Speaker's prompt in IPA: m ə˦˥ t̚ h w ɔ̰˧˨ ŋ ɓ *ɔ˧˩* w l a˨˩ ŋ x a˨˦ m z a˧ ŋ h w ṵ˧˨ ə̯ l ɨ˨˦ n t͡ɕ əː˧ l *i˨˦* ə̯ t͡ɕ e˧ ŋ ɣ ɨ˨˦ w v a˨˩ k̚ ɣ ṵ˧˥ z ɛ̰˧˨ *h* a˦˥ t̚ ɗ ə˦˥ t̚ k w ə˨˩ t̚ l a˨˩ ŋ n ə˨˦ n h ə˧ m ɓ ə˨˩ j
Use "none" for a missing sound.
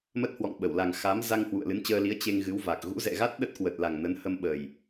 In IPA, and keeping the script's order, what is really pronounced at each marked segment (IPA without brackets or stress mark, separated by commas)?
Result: ə˧˩, i˨˦, ɣ